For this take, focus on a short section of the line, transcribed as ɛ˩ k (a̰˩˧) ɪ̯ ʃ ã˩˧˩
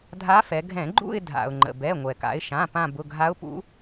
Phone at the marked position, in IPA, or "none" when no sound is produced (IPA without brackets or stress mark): a̰˩˧